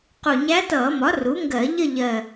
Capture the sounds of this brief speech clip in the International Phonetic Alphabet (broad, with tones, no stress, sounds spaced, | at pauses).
q u˨˩ ɲ æ˧˥ t ʌː˧˩˧ m ɒ˩˥ r u˩˥ ŋ ɡ ɜ˧˩˧ ʎ ə˥˨ ʎ ɜ˨˩